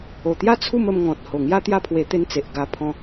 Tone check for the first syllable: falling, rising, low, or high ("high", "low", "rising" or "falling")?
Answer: low